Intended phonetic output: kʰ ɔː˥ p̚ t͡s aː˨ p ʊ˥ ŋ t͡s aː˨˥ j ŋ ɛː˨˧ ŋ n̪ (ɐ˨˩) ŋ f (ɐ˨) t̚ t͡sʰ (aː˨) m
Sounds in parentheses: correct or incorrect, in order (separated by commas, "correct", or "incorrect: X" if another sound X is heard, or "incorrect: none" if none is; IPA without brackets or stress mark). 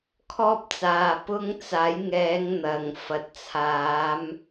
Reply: correct, correct, incorrect: aː˨˥